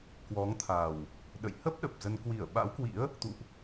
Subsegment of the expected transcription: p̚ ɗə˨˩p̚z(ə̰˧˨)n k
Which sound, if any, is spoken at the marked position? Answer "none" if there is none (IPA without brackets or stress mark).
ə˧